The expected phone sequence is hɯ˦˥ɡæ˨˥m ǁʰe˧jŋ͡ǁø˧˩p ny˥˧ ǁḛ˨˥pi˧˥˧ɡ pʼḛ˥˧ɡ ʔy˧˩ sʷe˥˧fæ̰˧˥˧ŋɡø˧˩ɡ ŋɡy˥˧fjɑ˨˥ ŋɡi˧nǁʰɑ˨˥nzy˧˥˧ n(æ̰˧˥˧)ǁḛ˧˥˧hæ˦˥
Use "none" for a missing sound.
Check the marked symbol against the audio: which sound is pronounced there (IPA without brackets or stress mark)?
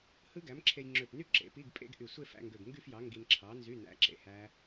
æ̰˧